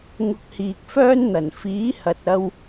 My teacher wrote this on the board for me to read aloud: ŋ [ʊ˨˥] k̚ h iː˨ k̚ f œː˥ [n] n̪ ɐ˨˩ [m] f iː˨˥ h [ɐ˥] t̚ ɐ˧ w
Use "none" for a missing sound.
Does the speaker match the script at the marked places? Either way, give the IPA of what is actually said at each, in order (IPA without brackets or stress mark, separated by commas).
ʊ˧, n, n, ɐ˨